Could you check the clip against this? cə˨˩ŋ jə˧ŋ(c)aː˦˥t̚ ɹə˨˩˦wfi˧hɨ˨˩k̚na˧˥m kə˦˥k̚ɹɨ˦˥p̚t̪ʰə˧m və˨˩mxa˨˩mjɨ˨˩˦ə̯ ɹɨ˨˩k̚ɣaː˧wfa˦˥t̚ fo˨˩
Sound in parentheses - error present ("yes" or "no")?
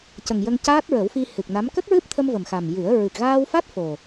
no